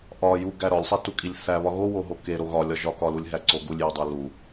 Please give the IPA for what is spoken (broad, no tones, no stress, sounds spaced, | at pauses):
ʔ ɒ j u ɡ æ ɾ ɒ lʲ sˤ e t u kʼ i lʲ θ æ β ɒ ɣ o w o ɦ o k e ɾ o ɣ ɒ lʲ ɒ ʒ ɒ k ɒ l u lʲ ɦ æ ǀ o ɡ u lʲ j ɒ dˤ o l u